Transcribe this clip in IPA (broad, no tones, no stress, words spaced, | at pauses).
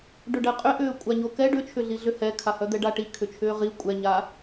ɖʏɖɛqʼʏʔʏː kʷʼaɲokɛ ɖʏt͡ʃʰʏɮiɮʏ hɛkʰahœ d̪ɛɖaʈi kʰʏt͡ʃʰʏːʁi kʷʼɛɲaː